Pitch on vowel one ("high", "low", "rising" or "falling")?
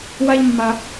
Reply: high